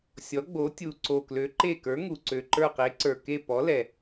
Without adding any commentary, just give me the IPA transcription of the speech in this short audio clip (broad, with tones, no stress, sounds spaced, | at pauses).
sʲ ɔ˨˥ ɡ͡b o˨˥ tʲ u˨˩ ǀ o˨˩ k l ø˨˥ ǃ e˦˨ k ə˞˨˥ ŋ u˨˩ ǀ ø˨˩ ǃ ə˞˦˨ q e˨˥ ǀ ə˞˨˩ k e˦˨ p ɔ˨˥ l ɛ˨˩